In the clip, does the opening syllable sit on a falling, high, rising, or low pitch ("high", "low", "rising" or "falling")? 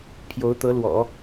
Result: rising